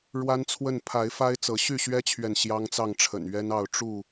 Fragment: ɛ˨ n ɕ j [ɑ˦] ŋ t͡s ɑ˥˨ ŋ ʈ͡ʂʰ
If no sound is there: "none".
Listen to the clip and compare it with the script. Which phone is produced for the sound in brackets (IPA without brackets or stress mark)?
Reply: ɑ˦